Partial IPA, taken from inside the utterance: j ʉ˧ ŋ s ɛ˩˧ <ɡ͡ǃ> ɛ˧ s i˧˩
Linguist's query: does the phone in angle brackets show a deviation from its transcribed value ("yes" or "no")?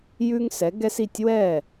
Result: yes